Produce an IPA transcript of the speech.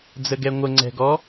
d͡zəɡɛŋʷə ŋ͡ǀɛ̤ɡɔ

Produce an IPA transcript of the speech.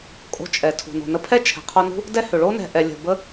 kʼo̤˧t͡ʃʼɛ˨ tʰṳ˨ no̤˨nə˧pʰɛ˦ t͡ʃʰɛ̤˨qʰo˧nṳ˦ | dɛ˦hʏ˨ ɭo˦nɛ̤˨ʔɛ˨lʲə̤˨ bə˦

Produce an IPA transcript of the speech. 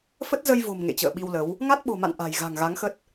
fə˦˥t̚zə˧jvo̤˨˩m ŋḛ˧˨t͡ɕə̰ː˧˨ɓi˧wlə˨˦w | ŋa˦˥t̚ɓo̤˨˩ma̰˧˨n ʔa̤˨˩j ɣa̤˨˩ŋɣa˨˦ŋxə˦˥t̚

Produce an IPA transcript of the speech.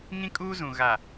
ŋĩ˦kʼuː˦zũ˨ ɣa˨

